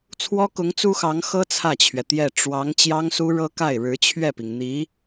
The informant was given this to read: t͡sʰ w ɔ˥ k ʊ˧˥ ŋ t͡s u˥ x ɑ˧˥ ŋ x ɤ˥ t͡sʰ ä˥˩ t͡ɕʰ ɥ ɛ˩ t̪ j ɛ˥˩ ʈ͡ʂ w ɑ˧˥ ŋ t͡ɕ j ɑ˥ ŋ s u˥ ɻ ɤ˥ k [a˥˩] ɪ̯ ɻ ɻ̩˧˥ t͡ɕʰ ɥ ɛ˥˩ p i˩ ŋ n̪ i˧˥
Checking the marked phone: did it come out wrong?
no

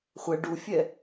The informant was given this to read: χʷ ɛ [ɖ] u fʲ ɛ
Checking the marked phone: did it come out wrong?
no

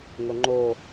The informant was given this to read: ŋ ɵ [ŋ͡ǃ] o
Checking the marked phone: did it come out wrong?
no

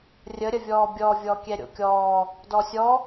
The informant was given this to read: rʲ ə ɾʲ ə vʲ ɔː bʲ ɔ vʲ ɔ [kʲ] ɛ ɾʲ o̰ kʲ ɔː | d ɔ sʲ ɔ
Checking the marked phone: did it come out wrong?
no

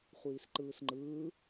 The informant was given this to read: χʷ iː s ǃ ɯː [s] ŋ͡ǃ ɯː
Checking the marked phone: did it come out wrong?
no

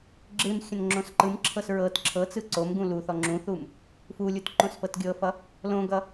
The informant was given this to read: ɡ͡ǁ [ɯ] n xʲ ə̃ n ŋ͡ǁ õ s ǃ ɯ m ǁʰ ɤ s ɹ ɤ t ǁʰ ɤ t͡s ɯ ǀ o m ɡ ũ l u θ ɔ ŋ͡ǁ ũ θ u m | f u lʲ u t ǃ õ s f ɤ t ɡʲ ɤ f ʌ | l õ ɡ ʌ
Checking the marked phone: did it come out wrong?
no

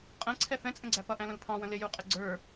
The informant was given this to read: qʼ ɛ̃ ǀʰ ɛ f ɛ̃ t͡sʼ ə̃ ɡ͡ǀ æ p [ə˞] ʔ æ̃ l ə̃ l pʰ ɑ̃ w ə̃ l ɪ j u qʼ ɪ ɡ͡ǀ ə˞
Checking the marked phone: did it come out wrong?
yes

